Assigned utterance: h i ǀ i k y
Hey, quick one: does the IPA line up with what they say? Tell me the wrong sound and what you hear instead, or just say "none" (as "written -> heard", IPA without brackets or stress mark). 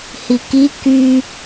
ǀ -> k